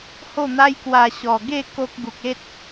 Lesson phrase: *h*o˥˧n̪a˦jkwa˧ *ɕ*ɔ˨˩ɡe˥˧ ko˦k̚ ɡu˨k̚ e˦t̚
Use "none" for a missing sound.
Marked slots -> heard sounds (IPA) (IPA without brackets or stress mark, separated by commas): h, ɕ